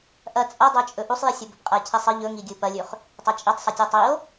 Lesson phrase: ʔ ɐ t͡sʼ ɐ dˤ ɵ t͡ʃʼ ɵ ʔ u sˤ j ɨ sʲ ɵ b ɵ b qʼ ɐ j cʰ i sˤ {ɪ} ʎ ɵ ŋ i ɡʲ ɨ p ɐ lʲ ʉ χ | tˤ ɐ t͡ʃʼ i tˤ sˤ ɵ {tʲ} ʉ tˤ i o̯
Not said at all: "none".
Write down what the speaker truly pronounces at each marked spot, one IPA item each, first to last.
ɨ, tʲ

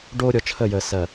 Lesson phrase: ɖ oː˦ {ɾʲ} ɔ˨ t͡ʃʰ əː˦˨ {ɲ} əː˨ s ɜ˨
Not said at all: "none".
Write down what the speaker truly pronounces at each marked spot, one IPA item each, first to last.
ɾʲ, j

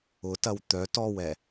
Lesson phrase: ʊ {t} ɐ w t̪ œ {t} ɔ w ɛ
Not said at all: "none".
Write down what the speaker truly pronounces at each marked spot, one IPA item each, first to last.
t, t

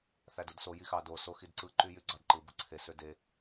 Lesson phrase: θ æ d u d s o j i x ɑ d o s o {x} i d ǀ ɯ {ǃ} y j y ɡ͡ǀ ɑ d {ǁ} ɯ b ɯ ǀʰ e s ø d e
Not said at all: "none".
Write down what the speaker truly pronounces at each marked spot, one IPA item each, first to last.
x, ǃ, ǃ

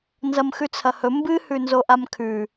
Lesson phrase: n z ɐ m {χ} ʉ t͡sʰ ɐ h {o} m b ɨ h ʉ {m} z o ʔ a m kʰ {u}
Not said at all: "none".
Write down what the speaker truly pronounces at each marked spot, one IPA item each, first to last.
x, ɵ, n, ʉ

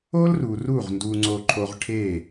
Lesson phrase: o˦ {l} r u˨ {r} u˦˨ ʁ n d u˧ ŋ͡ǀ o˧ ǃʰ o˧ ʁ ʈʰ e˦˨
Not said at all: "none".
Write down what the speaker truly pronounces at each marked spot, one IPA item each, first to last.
l, r

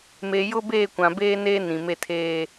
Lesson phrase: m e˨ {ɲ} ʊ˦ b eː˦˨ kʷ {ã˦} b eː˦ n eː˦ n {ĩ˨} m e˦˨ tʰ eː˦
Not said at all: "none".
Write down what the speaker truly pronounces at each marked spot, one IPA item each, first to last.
j, ã˨, ĩ˨

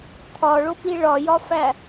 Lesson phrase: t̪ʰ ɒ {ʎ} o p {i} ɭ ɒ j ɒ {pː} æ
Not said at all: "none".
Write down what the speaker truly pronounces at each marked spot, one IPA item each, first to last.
ɭ, i, f

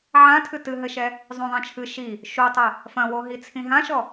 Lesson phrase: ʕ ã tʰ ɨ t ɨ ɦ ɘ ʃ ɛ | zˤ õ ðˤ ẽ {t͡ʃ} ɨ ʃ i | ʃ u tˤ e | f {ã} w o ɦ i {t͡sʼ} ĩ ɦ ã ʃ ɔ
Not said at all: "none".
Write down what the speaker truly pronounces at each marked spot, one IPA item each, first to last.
t͡ʃʰ, ɐ̃, t͡sʰ

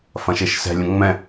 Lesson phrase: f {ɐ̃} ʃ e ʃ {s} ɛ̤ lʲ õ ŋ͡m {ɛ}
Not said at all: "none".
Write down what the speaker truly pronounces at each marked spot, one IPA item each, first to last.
ɐ̃, s, ɛ̃

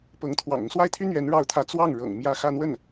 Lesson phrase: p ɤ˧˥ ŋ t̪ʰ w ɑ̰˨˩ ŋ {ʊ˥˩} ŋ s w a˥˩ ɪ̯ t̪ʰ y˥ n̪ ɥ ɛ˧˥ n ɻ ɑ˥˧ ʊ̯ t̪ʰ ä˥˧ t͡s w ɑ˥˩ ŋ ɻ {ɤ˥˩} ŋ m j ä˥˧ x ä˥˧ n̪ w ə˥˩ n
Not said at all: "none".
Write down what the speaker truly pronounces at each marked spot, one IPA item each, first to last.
ʊ˦, ɤ̰˨˩

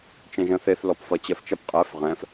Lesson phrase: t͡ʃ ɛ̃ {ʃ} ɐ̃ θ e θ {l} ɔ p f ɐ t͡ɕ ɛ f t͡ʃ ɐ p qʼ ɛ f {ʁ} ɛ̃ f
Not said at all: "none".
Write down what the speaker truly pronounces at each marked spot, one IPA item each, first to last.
ʒ, l, ʁ

